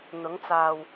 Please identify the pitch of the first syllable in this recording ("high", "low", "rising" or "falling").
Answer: rising